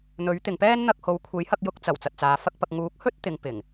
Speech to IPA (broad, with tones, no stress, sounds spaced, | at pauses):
n̪ ɵ˨˥ ɥ t̪ ɪ˨ ŋ p ɛː˥ n n̪ ɐ˧ k̚ h o˨˧ w kʷʰ e˨˥ j h ɐ˧ k̚ j ʊ˧ k̚ t͡s ɐ˨˩ w t͡s ɐ˨ t̚ t͡s aː˨˧ f ɐ˥ k̚ p ɐ˧ k̚ ŋ uː˨˥ k̚ h ɵ˥ t̚ t̪ ɪ˨˧ ŋ p ɪ˨˩ ŋ